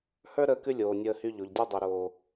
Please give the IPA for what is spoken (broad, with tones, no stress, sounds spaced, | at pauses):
h ə˞˦ ɾ əː˧ k ʉ˧ lʲ oː˨ nʲ əː˧ h y˧ ʎ o˨ ʎ dʲ o˦ dˤ i˨ ɾ oː˨